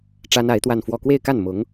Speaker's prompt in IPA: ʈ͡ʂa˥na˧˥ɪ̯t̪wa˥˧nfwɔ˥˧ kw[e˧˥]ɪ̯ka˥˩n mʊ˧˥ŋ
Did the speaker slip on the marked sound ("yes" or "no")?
yes